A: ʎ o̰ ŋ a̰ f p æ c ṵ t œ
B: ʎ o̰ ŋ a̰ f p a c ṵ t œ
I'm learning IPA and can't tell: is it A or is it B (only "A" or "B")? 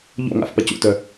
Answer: B